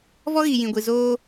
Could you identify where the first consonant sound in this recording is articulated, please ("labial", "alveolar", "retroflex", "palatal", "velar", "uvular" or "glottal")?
labial